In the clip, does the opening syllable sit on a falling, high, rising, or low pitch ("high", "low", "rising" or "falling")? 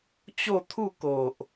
falling